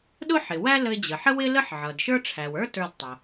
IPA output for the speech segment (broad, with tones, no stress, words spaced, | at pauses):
ɗʊ˥ħɪ˩wæ˥ lə˧ɪ̯d͡ʑə˩ħə˥ wɪ˥ lə˥ħʕʌ˩dʃə˞˥ ʈ͡ʂʰæ˩wə˞˥ tə˞˧dtˤʊ˩